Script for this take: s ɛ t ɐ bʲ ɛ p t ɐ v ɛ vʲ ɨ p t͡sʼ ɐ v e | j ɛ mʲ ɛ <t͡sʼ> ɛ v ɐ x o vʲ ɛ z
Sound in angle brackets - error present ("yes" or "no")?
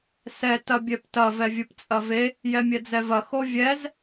yes